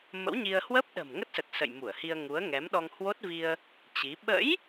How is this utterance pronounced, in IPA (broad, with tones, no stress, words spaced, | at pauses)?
mə̰˧˥wɲi˧ə̯ hwə˦˥p̚ɗə̤˨˩m ŋə˦˥t̚sə˨˩t̚ sə̰˧˨jmu˧˩ə̯hi˧ə̯ ŋu˨˦ə̯ŋɛ˨˦m ɗɔ˧ŋhwo˦˥t̚vi˧ə̯ | t͡ɕi˨˦ ɓə̰˧˥j